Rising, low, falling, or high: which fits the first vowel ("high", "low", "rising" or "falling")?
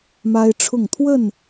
high